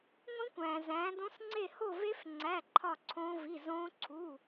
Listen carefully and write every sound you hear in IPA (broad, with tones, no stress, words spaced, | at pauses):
ŋʷĩ˦˥kʷæ̃ː˨ zæ̃ː˨˦dõ˦˥sŋ͡ǀe˥˧ ho˥˧ve˦˥f ŋ͡ǀæ˧˥˧ǃʰɒ˥˧ ǀʰõː˦˥vi˧˥˧ zõː˦˥ǀʰu˧˥˧